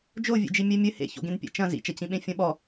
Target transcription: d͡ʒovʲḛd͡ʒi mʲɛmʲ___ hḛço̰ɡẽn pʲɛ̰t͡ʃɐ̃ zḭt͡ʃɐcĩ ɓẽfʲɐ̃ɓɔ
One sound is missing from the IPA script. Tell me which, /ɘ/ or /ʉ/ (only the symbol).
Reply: ɘ